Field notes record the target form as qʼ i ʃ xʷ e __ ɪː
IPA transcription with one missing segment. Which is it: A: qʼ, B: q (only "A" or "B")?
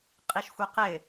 B